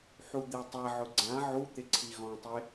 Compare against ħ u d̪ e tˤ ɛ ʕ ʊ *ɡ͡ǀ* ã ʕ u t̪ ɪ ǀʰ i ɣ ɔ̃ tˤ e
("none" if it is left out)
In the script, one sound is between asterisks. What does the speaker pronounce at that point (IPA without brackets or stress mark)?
ɡ͡ǀ